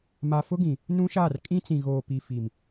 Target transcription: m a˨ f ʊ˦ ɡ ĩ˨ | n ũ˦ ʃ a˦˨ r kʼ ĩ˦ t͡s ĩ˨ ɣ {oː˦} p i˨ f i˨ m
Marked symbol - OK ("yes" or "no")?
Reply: no